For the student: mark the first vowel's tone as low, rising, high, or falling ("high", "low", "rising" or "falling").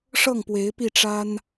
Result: falling